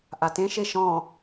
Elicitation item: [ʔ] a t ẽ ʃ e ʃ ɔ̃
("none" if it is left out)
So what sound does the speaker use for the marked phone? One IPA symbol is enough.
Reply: ʔ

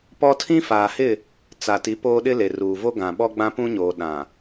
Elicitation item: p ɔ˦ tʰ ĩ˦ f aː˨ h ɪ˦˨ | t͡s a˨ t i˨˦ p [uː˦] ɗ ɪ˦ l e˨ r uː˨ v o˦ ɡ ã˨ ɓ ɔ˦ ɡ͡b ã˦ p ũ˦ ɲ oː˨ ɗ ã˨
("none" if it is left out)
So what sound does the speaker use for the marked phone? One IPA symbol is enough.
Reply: oː˦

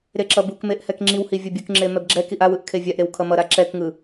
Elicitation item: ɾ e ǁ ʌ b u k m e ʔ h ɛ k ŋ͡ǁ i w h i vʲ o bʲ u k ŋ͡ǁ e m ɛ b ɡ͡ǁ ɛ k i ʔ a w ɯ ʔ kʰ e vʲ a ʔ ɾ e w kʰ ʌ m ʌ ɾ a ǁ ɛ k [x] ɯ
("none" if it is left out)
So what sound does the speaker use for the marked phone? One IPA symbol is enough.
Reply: ŋ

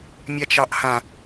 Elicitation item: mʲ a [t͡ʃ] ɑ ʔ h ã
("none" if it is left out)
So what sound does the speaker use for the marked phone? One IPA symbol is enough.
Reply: t͡ʃ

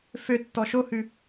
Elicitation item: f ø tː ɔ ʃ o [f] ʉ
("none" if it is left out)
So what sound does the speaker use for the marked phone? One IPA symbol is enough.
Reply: h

